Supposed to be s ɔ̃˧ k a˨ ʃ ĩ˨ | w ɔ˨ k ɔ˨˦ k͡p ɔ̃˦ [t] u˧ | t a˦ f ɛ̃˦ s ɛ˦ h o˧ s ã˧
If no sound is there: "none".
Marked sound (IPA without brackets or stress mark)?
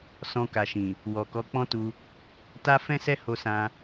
t